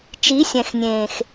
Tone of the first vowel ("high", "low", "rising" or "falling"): rising